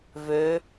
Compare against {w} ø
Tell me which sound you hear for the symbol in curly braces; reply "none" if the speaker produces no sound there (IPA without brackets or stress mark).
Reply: v